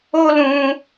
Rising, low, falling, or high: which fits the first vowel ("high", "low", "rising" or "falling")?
high